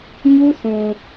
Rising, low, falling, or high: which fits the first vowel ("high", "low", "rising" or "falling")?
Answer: high